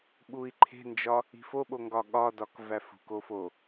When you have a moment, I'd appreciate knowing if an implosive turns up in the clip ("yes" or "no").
yes